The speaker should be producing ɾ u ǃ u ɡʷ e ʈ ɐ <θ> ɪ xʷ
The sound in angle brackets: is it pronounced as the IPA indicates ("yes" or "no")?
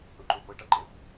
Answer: no